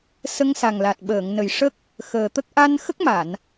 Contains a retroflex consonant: yes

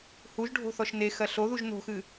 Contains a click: no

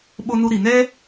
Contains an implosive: yes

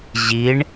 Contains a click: no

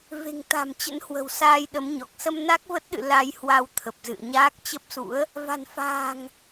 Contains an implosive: yes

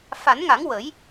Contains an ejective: no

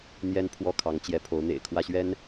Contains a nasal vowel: no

